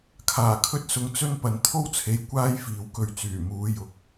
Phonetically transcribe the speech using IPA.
kʰ aː˨˩ kʰ ɵ˧ t̚ s ʊ˨ ŋ t͡s ɵ˥ n p ɐ˨ n t̪ʰ o˥ w t͡sʰ e˨ j kʷ aː˥ j f iː˨ w k ɵ˧ ɥ t͡s yː˨˩ m uː˨˧ j ʊ˨˥ k̚

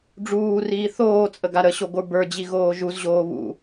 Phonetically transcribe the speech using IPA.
ɖ͡ʐ uː r iː θ oː t͡sʼ ə ɡ a ɾ ə ɕ o ɡʷ ə˞ b ə˞ d͡ʑ i ɣ oː ʒ u z ʑ oː β ṵ

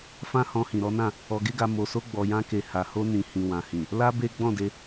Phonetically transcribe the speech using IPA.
f ã˦ h ɔ̃˧ h ĩ˨ ɾ ɔ˨˦ n ã˦˨ | ɔ˧ ɡ e˦ ɡ a˧ m o˧ s o˦ ɡ͡b ɔ˧ j ã˦ k e˧ h a˨ h o˧ n ĩ˨ h ĩ˨ w ã˨ h ĩ˨ | l a˦ b e˦ ɡ͡b ɔ̃˦˨ d e˧

